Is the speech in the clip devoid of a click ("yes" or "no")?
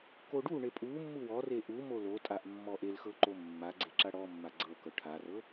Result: no